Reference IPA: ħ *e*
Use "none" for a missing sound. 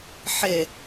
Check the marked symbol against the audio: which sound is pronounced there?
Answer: e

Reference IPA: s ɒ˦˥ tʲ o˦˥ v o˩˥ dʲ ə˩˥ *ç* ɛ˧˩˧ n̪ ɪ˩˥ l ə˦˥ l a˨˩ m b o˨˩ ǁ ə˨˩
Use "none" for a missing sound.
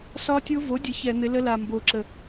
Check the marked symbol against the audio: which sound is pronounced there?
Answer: ç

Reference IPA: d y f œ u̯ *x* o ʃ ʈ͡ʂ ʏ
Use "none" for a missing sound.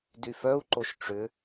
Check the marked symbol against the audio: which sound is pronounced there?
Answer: ǃ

